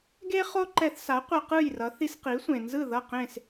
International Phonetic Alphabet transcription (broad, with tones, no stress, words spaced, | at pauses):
ɡe˥ χo˥ǃɛ˧θsa˩˥ qʷʌ˧qɯ˥˩jrʌ˩˥ θi˧sqi˩˥sʷẽ˩nzɯ˥˩ ðʌ˥˩qẽ˥˩s